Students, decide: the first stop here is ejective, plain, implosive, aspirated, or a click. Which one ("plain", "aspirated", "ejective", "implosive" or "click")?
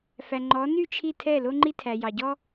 click